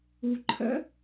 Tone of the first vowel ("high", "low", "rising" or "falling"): low